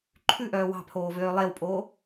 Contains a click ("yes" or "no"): yes